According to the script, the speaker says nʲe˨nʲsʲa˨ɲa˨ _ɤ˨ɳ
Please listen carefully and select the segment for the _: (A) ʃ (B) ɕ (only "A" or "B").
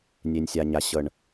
B